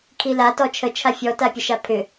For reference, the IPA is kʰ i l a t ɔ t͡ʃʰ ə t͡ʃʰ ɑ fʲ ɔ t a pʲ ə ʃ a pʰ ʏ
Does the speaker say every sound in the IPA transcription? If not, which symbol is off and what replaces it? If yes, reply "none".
ɑ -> a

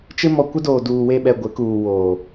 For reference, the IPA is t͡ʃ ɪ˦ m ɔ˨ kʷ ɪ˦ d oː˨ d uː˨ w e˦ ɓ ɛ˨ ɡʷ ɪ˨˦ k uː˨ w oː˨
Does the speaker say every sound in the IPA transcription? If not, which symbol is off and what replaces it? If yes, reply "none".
none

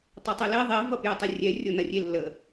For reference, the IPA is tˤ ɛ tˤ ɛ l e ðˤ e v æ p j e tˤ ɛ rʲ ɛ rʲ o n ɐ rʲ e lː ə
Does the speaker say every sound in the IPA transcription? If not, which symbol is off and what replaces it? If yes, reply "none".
æ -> ɐ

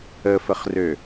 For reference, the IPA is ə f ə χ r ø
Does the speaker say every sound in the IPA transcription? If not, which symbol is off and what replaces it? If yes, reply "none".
none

